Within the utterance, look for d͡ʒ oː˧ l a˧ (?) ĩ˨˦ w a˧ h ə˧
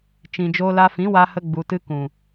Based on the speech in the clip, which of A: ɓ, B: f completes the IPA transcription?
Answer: B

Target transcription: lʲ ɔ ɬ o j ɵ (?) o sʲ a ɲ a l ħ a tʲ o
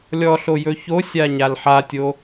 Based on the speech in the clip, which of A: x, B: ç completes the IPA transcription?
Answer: B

